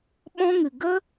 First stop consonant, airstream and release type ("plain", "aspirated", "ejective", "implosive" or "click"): implosive